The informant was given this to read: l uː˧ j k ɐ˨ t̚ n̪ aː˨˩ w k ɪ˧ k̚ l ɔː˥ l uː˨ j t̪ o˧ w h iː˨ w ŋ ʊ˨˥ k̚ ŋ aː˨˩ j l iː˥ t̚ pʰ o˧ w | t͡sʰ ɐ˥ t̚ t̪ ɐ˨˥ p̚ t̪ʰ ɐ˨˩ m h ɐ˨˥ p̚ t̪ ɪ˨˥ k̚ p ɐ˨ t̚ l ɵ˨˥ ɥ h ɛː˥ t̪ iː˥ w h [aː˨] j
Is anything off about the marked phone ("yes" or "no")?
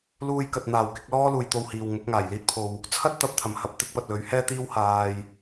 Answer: no